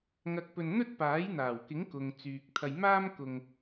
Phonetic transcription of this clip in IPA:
ŋ ɐ˧ k̚ p ɵ˧ n n̪ ɵ˥ t̚ p aː˨˥ j n̪ aː˨˩ w k ɪ˨˥ ŋ k ʊ˨ ŋ t͡s yː˨ k̚ t̪ʰ ɐ˧ j m aː˥ m k ʊ˧ ŋ

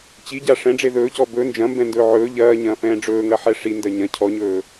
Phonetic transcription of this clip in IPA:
t͡ɕ i ɟ a ʂ ɛ̃ ɖ͡ʐ e ð ɵː c ɔ b ɵ n d͡ʒ ɐ̃ m b ɛ̃ n d ɵː ʕ ɵː ʎ ɐː ɲ ɐ̃ː f ɛ̃ː ɖ͡ʐ ɵː ŋ ɐ ħ ɛ ʂ i n d ɐ ɲ ɐ̃ cʰ ɔ ɲ ɵː

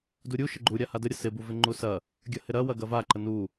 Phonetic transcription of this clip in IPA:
d u ɾʲ u ʃ ə ɡ͡ǃ u ɾʲ a h a d ə ɾʲ ə s ɪ b u v ɪ ŋ͡ǃ u s ɐ | ɡʲ ɐ h ɪ ɾ ɐ w ɐ ɡ ɐ v a ǃ ə n u

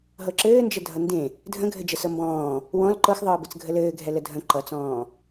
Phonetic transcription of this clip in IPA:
ɦ ɤ ǁ ɘː n d͡ʒ ə dʱ ʌ n d ẽ | dʱ ə̃ ɡʱ ɘ d͡ʒ ə s ɤ m b ɔ̃ː | w ɔ̃ l ǃ ɤ x ðˤ ɤː b ɘ t͡s ɡʱ ə l ɘː ɡʱ ɛ l ə dʱ ə̃ ǃ ʌ t͡s ɔ̃ː

